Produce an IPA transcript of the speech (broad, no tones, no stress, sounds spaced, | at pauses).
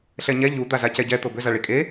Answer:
ɬ ɛ ɲ ɛ ʎ u d̪ a z a c ɛ ɟ ɛ t̪ ɤ b ʏ z a ɭ i kʼ e